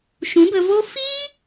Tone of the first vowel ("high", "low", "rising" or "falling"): rising